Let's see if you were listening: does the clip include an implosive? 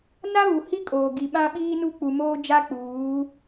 yes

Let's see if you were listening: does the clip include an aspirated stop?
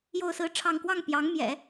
yes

